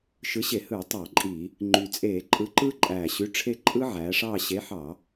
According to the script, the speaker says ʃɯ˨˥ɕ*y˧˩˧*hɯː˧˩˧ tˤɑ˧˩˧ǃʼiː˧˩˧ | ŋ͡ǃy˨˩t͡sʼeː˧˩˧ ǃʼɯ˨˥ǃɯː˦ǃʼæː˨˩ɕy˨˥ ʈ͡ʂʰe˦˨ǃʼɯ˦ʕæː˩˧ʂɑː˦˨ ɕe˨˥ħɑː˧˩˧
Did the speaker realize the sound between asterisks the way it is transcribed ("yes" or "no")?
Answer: no